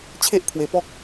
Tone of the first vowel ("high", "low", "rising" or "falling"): high